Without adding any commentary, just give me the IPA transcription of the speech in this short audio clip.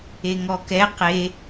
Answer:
eŋɔkɛ qe

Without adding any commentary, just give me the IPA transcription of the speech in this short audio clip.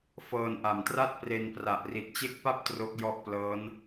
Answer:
fɤː˧nʔa˨˩mtra˥˩t̚pre˧n pra˨˩ʔ ri˨˩t̚t͡ɕe˦˥k̚pa˥˩p̚ tro˦˥k̚ jɔ˦˥ʔplɤː˦˥n

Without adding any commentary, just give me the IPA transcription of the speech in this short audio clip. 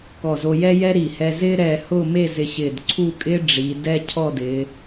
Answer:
kɔ˧˩zo˧ jɛ˥jɛ˥ɾi˧˩ hɛ˧zɪː˥ ɾɛː˧hʊː˥˧me˥˧ zɪ˧ɕɪː˧˩dǀʰu˥˧kʼɪː˥ ɖ͡ʐi˩˧ dɛ˥˧ cʰɔ˥˧dɪː˩˧

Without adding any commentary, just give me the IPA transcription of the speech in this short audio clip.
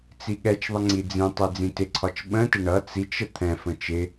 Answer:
t͡siɠɛt͡ʃðˤə ŋ͡ǀid͡zĩtˤi d͡zĩtɪǀʰɒt͡ʃ ɓə̃tɪ ɳʌ t͡sit͡ʃə t̪ʰɛ̃fə̃ t͡ʃɪ

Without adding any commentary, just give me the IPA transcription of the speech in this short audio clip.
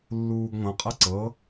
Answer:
lːuːɡŋʷɐ̃qʼɐ ǀɤ

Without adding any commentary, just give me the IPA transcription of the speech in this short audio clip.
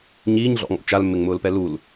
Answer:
ɲiːɲɮɔ̰ŋɔ̰ t͡ʃalmːɪŋmʊːlpɛ lul

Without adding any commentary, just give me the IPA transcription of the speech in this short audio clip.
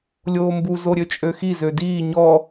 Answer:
lʲoːmbu zoɾʲøt͡ʃʼøxi zødiː ɲɔ

